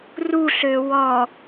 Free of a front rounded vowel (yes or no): no